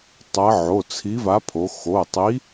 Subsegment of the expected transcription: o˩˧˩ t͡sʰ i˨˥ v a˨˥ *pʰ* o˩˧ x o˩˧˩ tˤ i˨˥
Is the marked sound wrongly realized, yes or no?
no